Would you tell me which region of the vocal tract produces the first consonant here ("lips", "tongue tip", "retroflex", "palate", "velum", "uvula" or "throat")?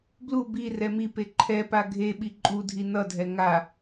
lips